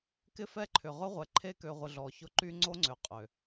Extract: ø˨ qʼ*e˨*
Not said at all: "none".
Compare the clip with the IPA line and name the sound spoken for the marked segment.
ø˨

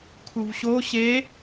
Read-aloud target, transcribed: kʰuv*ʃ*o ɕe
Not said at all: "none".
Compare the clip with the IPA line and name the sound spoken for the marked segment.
ɕ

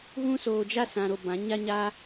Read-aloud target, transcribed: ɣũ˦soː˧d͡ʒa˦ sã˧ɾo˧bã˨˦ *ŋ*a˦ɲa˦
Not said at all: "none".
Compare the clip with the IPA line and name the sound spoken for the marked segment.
ɲ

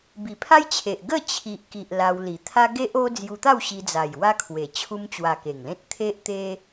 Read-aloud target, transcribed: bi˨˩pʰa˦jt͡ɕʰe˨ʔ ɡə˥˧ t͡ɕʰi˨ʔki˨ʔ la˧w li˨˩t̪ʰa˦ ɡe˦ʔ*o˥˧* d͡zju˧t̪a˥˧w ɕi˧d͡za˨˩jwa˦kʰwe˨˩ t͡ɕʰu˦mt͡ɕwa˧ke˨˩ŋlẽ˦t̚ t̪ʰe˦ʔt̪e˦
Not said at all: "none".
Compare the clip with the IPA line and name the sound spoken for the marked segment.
o˦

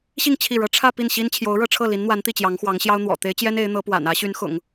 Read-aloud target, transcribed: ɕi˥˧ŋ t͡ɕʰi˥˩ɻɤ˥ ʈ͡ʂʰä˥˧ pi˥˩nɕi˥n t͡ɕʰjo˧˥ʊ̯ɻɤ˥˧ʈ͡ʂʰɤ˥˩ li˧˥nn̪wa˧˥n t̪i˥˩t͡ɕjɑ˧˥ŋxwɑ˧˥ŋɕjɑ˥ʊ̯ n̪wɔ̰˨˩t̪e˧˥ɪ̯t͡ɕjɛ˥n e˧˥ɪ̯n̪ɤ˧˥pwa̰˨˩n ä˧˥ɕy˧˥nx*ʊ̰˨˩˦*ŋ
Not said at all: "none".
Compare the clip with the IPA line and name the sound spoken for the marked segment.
ʊ̰˨˩˦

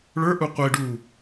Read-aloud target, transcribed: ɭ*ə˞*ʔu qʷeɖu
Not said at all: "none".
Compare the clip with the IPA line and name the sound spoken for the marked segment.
ə˞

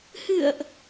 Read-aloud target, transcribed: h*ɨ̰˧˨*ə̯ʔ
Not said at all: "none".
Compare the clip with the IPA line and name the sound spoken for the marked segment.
ɨ̰˧˨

